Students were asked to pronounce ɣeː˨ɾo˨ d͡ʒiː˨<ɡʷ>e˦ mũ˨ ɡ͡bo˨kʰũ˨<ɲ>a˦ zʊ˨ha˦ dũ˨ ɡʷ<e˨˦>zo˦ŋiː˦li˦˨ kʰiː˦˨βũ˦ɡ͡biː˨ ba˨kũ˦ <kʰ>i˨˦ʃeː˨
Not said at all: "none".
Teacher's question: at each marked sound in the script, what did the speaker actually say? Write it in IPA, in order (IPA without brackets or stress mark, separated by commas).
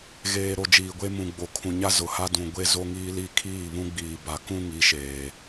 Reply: ɡʷ, ɲ, e˦, ŋ